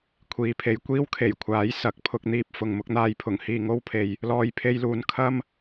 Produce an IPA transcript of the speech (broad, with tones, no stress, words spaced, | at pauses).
kʷʰiː˨pʰe˨j kʷiː˥wkʰe˨˩jkʷʰaː˨˥j sɐ˨k̚pʰʊ˧k̚n̪iː˧p̚ fʊ˨ŋmʊ˨˥k̚n̪aː˧j pʰʊ˨˩ŋhiː˧ŋo˥wpʰe˨j | lɔː˧jpʰe˧jluː˨n kʰɐ˥m